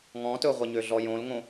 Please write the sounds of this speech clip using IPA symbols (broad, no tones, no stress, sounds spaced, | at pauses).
ŋ ɔ̃ t ɵ ʁʷ ɐ ɲ ø ɮ ɔ j õ l ŋ õ